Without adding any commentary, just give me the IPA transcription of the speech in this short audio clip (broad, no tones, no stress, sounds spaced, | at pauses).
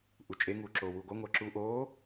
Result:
ʔ u t͡ʃʼ e ŋ uː ǁ oː w uː ɡʷ ʌ ŋʷ ʌː ǁ u ʔ oː